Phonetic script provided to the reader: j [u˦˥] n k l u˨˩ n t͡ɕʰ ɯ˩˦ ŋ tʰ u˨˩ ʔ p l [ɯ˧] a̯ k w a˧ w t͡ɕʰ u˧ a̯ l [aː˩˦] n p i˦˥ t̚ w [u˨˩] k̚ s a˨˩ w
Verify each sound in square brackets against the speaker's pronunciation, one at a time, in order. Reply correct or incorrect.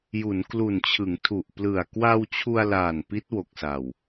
incorrect, incorrect, incorrect, incorrect

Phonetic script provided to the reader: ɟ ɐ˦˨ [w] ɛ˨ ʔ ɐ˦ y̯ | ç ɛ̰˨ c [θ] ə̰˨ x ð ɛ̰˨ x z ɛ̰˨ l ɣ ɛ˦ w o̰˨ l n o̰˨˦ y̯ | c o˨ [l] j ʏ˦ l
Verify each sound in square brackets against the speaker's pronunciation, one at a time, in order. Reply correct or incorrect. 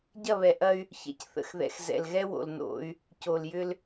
incorrect, correct, correct

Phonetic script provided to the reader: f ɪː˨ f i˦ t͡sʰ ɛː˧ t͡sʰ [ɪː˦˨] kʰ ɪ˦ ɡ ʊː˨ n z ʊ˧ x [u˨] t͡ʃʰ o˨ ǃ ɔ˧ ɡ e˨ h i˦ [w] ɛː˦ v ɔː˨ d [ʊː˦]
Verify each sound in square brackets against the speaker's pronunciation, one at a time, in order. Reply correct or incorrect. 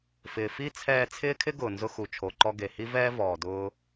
incorrect, correct, incorrect, incorrect

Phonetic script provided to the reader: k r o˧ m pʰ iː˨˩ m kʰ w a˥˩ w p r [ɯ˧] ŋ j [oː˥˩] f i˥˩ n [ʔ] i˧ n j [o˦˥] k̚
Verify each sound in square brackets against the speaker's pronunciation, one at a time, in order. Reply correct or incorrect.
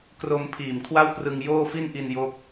correct, correct, correct, correct

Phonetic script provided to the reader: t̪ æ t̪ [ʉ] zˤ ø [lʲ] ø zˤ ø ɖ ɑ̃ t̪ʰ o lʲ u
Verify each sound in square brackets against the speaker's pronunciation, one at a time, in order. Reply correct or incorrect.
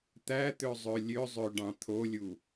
incorrect, correct

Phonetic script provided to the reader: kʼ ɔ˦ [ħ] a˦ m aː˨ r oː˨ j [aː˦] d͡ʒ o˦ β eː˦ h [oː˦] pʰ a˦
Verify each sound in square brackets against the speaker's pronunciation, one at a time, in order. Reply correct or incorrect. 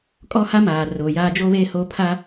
incorrect, correct, correct

